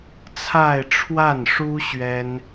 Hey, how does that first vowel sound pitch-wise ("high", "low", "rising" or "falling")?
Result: falling